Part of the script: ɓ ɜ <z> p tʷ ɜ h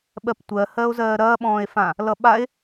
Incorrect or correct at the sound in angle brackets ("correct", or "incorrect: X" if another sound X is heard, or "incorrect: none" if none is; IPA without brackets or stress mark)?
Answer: incorrect: none